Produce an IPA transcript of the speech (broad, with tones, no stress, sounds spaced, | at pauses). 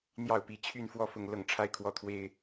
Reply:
n̪ j ɑ˥˩ ʊ̯ p i˧˥ t͡ɕʰ y˥˧ n f w ɔ˥˧ f ʊ˥˧ ŋ l ɤ˥˩ ŋ ʈ͡ʂʰ a˥ ɪ̯ kʰ w ɔ˥ t̪ʰ w e˥ ɪ̯